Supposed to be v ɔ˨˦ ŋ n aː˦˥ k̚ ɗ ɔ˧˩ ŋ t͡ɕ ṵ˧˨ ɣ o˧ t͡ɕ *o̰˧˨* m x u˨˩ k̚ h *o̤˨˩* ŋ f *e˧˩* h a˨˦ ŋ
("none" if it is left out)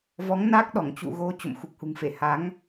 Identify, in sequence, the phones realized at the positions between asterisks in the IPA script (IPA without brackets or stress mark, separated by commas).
o̰˧˨, ṳ˨˩, e˧˩